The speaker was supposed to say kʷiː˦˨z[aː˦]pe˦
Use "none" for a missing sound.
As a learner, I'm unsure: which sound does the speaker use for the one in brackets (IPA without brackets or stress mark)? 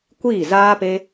aː˦